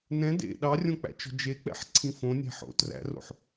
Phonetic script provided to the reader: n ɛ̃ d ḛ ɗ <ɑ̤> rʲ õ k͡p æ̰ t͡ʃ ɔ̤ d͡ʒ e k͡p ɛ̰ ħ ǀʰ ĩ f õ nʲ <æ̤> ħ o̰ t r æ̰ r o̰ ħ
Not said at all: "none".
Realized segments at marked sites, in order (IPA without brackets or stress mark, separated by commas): ɑ, æ̤